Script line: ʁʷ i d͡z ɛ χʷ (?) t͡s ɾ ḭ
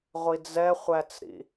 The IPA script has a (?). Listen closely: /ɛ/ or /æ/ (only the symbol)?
æ